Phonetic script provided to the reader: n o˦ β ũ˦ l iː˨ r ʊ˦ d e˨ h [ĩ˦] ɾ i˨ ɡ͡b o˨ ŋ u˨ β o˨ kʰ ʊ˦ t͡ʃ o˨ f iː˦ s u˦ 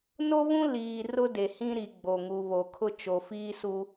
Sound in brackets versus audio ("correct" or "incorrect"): correct